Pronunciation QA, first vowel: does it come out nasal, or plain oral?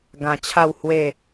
nasal